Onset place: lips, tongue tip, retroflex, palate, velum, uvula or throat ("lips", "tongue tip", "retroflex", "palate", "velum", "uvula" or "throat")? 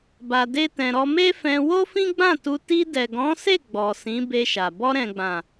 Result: lips